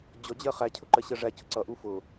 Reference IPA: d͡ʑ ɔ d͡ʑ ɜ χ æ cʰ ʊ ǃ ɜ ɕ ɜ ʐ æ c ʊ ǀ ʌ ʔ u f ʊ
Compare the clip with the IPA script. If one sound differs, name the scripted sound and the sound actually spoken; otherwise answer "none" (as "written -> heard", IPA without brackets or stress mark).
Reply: none